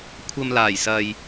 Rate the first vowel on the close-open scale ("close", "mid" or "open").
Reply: open